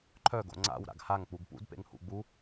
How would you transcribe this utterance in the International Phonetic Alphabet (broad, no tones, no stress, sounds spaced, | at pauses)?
ǃʰ œ ɡ o̰ ŋ͡ǀ a̰ w ɾ a̰ ɡ h a ŋ k͡p u ɡ p ṵ d p ḛ ŋ h ṵ ɡ͡b u